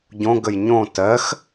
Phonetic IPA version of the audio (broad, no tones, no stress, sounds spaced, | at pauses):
ɟ õ ɡ ə j ɲ õ t ɜ x